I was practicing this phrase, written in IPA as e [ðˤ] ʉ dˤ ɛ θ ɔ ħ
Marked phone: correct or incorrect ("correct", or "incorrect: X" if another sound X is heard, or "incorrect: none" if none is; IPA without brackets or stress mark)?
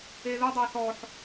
incorrect: ð